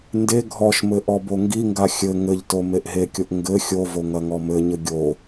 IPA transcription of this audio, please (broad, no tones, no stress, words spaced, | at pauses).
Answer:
nde ɡʱɔʃmɘ ʔɔboŋɡiŋɡa xʲɘ ŋɘʎto meʔɦekʲoʔ ŋɡɘ xʲovo ŋɐŋɔmɘɲɘ ɡʲo